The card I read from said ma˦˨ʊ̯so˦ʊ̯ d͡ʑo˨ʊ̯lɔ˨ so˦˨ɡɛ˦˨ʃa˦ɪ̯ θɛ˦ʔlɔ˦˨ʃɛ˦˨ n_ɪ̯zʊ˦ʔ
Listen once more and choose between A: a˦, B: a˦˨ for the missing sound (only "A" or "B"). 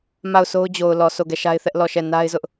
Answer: A